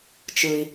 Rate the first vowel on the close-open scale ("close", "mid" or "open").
close